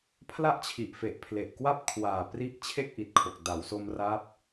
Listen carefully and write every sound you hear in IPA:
pʰ l a˥˩ ʔ t͡ɕʰ i˨˩ ʔ f e˨˩ ʔ pʰ l e˨˩ ʔ k w a˥˩ p̚ kʰ w aː˨˩ p r i˦˥ ʔ t͡ɕʰ e˥˩ k̚ ʔ i˨˩ t̚ kʰ o˨˩ k̚ d a˩˦ w s o˧ m r a˦˥ p̚

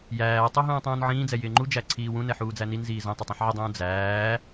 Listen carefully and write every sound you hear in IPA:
j æː tˤ u ɦ ũː tˤ ũː n ʕ ĩː d͡z ɛ j ɪː ŋ͡ǃ u d͡ʒ æ ǀʰ iː w ũ n ɛ ħ uː d͡z æ n i n z iː z ɛ̃ tˤ ɛ tˤ ĩ ħ ʕ ɪ dˤ ũː d͡z æː

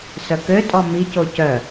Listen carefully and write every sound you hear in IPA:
s œ k ø tʼ ɔ m i c o c œ

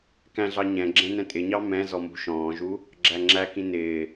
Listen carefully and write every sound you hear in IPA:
k æ̃ ɮ ɑ ɲ ɛ̃ ɡ͡ǁ ɛ̃ n ɛ̃ tʼ ɪ ɲ ɑ m ɛ̃ z ɔ m ṳ ʃ ɔ̃ː ʒ u | ɡ͡ǁ æ ŋ͡ǁ æ k ĩ n ɪː

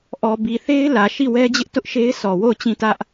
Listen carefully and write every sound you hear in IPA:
ʔ ɔ˨ b i˨ θ e˦ ɪ̯ l ä˨ ʃ i˦˨ w ɛ˦ d͡ʑ ɪ˦ ʔ t ʊ˦ ʔ ʃ e˦ ɪ̯ s ɔ˨ w o˦˨ ʊ̯ t͡ɕ ĩ˦˨ t ä˦ ʔ

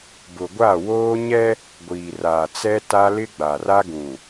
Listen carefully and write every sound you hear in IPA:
b ʊ˨ ɡʷ a˦˨ w oː˦ ɲ ɛ˦ | ɡʷ iː˨ r aː˨ t͡s ɛ˦ t a˦ l ɪ˦ ɡ͡b a˨ r a˦ ɡ ũ˨

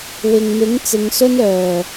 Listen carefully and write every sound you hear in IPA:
w ɪ˨ ŋ m ɪ˨˥ ŋ t͡s ɪ˨˧ ŋ s ɵ˥ n œː˨˩

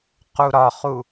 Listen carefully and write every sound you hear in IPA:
q u ɾ ɒ χ u

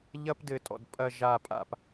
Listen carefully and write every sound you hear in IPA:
ʎ ɐ˦ p d ɘ˨ tʼ ɔ̰˨ d pʼ ɐ˦˨ ʒ a˦˨ pʼ a̰˨ p

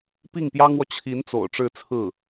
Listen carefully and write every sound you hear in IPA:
p i˥˩ ŋ p j ɑ˥ ŋ w ɔ˨ t͡ɕʰ i˧˥ n t͡s o̰˨˩ ʊ̯ ʈ͡ʂ ɻ̩˥˧ t͡sʰ ɹ̩˥˩

